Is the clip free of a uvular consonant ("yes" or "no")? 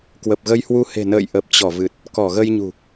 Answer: yes